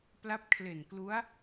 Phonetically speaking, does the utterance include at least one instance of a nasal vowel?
no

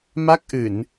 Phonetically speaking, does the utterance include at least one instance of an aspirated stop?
no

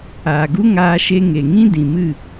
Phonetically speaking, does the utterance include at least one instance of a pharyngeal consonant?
no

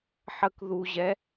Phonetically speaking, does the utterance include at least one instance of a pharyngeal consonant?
yes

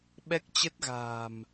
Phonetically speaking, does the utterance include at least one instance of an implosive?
yes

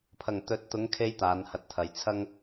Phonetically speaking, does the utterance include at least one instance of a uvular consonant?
no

